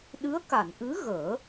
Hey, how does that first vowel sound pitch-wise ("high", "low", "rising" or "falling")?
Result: rising